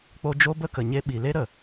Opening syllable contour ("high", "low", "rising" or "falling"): high